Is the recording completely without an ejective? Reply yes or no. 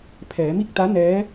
yes